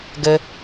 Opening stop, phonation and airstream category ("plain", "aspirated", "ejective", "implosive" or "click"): plain